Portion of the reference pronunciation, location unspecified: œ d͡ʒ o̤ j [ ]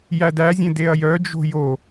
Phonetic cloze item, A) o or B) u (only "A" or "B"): A